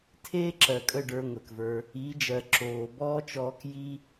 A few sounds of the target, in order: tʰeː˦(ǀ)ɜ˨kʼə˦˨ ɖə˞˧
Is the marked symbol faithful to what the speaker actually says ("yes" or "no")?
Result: no